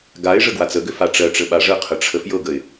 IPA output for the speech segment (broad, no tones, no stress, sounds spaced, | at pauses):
ɡ a ɪ̯ ʐ ə ɡ w a t͡s ə ɡ ʏ f a ʈ͡ʂ ɜ ʈ͡ʂ ə ɓ a ʐ ə qʰ ə ʈ͡ʂʰ ə f j ɤ ɡ ə ɪ̯